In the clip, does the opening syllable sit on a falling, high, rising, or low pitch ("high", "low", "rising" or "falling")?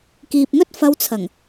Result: low